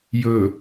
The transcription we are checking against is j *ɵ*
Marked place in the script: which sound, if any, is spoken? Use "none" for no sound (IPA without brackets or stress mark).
ɵ